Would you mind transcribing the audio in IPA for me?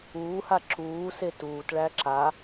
uːha ǁuːse tuːtɭæ ǁa

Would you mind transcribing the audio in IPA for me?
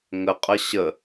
ŋəqʼə ɕə

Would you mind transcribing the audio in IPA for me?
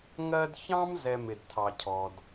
ŋɜ˦dçɑ̃˥m zɛ˦mɪ˨dtʰɑ˨cʰɔ˩d

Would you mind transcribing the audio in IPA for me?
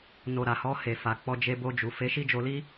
no˨ ɾa˨hɔ˧he˨fa˨ k͡pɔ˧d͡ʒe˧bo˧d͡ʒu˨ fe˨˦ʃi˦d͡ʒo˧li˦

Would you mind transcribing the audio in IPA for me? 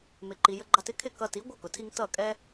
mɪ˩ǃi˩ jə˧ɡ͡ǃɑ˧t ɪ˥kʰɪ˥˩ kʌ˧ti˩˥ ɡʷʌ˥˩kʊ˩tʰi˧ŋ tʌ˥˩kʼɛ˥

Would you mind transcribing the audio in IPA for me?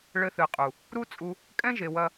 ɭɘ˧θɨ˨qʼu˨ | ɾu˦t͡sʼu˧ | kʼɛ̃˦ʒe˨wɐ˧

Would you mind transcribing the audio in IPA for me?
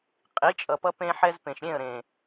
qʼi˨˦t͡ʃʼʌ˨pʌ˧ pẽ˧ħɛ˧zpẽ˨ʃɾʲẽ˦˨ə̯ ɾẽ˨

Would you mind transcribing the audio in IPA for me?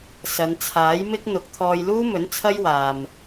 sɐ˨˧nt͡sʰaː˨˥jmɪ˥k̚ n̪ʊ˨˥k̚t̪ʰɔː˧jluː˥mɵ˨˥n t͡sʰɐ˥jwaː˨m

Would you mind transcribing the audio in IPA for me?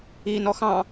i nɔxɑ̃

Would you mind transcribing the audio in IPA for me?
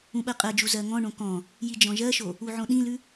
ũɓɜqʼɜd͡ʒu zɜŋɔ̃ɳõ kɔ̃ | jid͡ʒɔ̃ʒɜʃo | uʕõɗĩlʉ

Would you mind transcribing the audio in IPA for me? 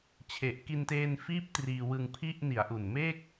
t͡ɕʰe˨˩ʔki˧nteː˧nfiː˦˥p̚ triː˧wɯ˧ŋpʰi˥˩ʔ ni˩˦a̯ ʔu˨˩nmeː˥˩k̚

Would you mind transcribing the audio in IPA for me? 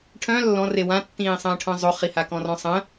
ʈʰœ̃ lːɔ̃re wãtːĩːsˤə̃ːʈʰœ̃ zˤoχiha kɔ̃rɔ̃sˤə̃

